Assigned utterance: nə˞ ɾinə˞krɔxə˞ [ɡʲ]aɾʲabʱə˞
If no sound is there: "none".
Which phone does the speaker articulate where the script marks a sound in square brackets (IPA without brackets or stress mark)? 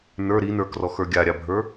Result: ɡʲ